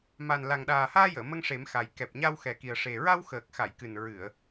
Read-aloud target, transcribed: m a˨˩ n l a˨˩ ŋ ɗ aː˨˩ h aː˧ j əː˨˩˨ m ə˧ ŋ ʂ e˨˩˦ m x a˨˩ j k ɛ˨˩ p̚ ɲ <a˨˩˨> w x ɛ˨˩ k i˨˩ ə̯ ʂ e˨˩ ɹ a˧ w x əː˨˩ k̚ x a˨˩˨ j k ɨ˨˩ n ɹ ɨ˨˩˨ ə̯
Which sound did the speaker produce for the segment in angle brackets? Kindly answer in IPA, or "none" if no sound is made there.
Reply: a˧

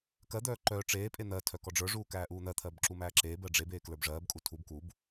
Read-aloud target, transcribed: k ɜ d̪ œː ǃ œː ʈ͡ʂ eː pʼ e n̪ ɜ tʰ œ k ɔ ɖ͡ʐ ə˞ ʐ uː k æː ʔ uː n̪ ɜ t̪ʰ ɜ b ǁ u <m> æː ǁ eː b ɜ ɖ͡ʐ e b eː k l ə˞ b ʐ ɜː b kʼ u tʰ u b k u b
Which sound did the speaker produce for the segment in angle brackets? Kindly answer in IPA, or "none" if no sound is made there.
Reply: m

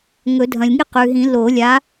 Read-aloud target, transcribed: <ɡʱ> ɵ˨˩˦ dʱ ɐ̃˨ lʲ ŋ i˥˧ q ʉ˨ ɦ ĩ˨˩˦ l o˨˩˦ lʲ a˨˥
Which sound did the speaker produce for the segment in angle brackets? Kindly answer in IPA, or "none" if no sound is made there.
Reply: ŋ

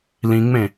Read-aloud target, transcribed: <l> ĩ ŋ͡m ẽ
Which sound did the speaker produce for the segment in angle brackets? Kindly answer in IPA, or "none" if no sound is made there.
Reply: l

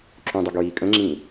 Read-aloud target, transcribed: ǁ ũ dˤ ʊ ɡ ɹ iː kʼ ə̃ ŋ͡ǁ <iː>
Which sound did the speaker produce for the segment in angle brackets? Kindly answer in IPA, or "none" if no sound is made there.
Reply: ĩː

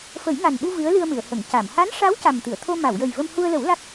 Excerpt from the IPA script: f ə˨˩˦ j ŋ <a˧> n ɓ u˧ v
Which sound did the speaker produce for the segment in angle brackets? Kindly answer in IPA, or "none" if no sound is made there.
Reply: a˨˩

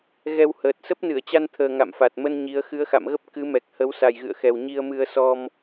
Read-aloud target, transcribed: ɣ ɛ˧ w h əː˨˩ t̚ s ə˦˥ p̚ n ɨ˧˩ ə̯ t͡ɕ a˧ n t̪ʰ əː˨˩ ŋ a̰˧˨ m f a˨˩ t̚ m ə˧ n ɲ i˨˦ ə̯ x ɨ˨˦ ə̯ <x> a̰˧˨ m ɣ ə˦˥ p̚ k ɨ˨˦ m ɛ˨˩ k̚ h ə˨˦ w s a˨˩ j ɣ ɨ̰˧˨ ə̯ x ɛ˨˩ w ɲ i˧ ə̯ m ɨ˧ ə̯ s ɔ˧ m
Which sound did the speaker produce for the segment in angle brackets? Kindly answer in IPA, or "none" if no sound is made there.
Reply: x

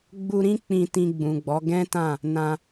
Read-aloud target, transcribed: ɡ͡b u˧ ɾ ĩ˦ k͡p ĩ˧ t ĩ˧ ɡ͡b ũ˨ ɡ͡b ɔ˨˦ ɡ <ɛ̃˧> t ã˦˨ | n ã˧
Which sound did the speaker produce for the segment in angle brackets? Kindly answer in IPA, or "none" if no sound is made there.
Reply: ɛ̃˦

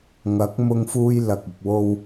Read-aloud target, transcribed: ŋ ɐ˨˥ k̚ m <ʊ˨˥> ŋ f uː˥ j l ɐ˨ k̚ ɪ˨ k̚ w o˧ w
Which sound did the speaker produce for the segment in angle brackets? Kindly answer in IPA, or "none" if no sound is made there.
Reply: ʊ˥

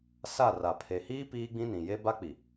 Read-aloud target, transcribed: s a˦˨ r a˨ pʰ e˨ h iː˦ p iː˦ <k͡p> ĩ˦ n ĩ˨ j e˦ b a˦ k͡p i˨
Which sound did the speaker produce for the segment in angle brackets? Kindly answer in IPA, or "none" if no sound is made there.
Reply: ɡ͡b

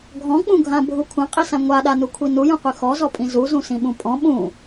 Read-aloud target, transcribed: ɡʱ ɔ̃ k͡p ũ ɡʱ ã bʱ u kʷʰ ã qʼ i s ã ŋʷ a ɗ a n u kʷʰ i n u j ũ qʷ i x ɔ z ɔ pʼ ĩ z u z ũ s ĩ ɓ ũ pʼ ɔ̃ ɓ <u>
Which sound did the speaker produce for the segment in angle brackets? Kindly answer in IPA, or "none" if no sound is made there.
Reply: ũ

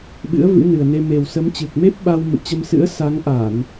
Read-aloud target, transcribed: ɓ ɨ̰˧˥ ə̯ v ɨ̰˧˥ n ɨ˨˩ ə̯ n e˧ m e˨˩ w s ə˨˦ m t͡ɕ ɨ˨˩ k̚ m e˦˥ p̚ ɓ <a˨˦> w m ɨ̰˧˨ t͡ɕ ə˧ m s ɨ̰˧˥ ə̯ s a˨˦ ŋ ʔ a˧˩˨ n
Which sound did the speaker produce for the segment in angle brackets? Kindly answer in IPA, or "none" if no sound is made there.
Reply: a˧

